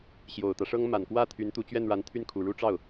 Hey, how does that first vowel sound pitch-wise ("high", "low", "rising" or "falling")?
low